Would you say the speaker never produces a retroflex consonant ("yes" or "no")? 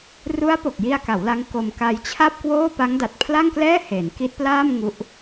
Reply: yes